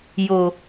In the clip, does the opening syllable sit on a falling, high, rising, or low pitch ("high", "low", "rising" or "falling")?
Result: low